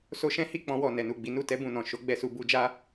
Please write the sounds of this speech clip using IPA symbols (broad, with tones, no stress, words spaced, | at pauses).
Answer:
so˧ʃɛ̃˦ hi˦˨k͡pɔ̃˧wɔ˨ nɛ˨nu˨ɡ͡bi˨˦ nu˦˨tɛ˧bũ˨nɔ̃˨ ʃo˨˦ɡ͡bɛ˧su˧ bu˧d͡ʒa˦